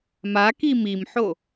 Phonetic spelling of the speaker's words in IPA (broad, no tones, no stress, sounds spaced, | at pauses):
m a k i m i m ħ o